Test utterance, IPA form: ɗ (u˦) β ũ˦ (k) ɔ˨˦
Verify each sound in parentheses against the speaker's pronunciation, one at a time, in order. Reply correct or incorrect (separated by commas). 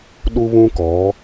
correct, correct